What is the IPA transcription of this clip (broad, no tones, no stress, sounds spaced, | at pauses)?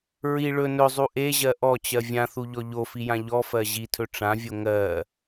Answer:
ɹ i ɭ ɵ n ɵ zˤ u ʔ e ʑ ɜ ʔ ɔ t͡ɕ ɜ vʲ ã θ u ʎ ɔ ʎ o f i j ã ʎ ɔ f ɜ ʑ i tʰ ɵ ʈ͡ʂ ã vʲ o ŋ ɜ